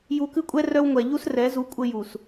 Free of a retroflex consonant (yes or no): yes